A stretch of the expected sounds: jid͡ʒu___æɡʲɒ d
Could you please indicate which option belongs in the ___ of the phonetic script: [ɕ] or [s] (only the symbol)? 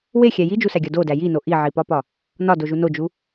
s